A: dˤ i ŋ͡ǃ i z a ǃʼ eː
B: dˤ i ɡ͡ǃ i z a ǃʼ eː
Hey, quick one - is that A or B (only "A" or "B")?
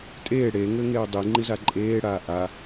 A